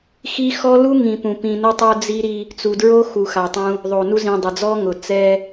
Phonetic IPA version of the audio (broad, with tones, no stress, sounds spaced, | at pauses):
x i˦ x ɔ˦ l u˦ ŋ ĩ˨ p ũ˨ p ĩ˨ n ʊ˦ tˤ o˦ d͡z i˦ ɾ i˦ | t͡s u˨ d ɹ o˦ x u˨ x a˨ tˤ ũ˦ | ðˤ o˨ n u˦ z ĩ˨ dˤ ɪ˨ d͡z ɔ˦ ŋ ʊ˨ t͡s ɛ˦